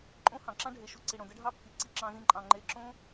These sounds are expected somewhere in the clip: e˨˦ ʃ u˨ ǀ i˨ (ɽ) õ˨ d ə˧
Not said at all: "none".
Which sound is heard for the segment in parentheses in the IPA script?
ɽ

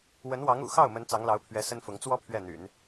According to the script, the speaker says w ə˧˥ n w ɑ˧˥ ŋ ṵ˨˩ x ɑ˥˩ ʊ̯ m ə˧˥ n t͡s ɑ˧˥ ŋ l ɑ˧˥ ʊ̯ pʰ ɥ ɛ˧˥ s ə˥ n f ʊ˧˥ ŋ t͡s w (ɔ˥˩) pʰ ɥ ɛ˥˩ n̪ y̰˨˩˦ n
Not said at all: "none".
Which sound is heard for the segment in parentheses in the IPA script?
ɔ˥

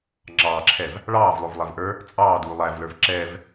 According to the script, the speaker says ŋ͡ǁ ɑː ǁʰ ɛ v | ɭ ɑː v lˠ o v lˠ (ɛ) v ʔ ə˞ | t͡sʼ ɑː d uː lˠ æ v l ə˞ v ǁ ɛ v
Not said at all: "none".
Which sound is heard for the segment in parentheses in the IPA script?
ɛ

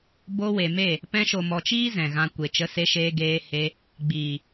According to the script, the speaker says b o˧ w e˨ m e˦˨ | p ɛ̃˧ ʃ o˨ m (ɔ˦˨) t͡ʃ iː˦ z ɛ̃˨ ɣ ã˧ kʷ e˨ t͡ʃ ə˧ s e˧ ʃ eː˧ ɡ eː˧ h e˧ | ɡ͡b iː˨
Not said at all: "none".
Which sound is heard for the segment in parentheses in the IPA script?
ɔ˨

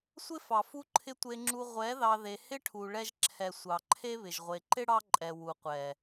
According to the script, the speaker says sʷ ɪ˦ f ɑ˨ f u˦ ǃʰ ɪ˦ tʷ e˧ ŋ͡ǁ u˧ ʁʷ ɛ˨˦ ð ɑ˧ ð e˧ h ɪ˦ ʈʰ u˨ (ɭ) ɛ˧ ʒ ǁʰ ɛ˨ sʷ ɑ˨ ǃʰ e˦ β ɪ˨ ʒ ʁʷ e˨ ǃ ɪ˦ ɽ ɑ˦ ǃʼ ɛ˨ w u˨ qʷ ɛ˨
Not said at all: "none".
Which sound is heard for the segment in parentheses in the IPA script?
ɭ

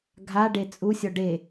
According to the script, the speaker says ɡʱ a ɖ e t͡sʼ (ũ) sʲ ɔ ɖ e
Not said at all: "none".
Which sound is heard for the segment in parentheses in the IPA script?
u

